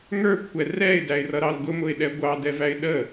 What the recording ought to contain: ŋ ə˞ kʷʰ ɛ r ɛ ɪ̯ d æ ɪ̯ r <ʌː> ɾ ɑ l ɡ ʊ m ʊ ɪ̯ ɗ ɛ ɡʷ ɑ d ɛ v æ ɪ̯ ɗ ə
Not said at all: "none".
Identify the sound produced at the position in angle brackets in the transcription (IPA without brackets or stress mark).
ʌ